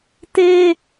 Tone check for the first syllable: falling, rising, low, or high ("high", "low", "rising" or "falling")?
high